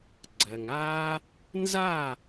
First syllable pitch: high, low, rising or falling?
low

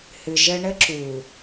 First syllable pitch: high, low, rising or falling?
low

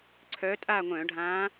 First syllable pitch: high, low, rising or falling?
rising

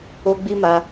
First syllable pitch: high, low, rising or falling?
high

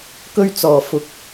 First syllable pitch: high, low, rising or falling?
high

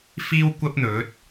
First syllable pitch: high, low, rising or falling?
high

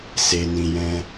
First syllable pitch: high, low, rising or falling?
low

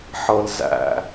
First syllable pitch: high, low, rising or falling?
high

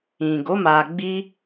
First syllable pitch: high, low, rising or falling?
low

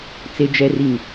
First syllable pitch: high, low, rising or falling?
low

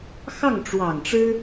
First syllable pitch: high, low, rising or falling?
falling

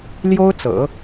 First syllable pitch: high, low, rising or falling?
high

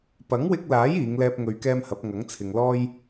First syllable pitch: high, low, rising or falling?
rising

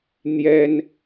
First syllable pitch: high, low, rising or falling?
high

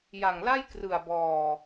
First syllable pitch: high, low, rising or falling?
low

